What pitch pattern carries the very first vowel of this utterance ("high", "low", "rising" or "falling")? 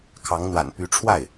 rising